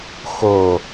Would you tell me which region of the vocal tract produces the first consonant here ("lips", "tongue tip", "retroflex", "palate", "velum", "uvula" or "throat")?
velum